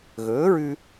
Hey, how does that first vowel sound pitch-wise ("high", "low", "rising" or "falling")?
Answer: rising